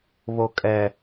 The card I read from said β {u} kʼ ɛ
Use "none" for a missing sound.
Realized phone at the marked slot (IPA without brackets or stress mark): o